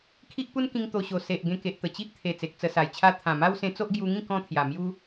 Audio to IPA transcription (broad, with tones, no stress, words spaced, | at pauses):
kʰi˦ʔpu˦nkĩ˧ŋ t̪o˧ɕo˨˩ se˨ʔ ɡẽ˧ke˨ʔt̪ə˨˩ t͡ɕi˦ʔ t̪ʰe˨˩ t͡se˨k̚t͡sə˧sa˨˩jt͡ɕʰa˦ t̪ʰã˨˩ma˦w sẽ˧t͡so˦ʔɡju˧ŋĩ˥˧ kɔ̃˦t̪ʰja˨˩mju˦